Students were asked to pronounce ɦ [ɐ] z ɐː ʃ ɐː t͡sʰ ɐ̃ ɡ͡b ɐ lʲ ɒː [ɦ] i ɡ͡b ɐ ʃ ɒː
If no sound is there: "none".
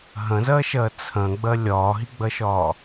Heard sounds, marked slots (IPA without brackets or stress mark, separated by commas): ɐ̃, ɦ